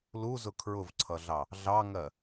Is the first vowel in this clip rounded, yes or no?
yes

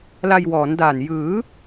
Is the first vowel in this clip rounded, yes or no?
no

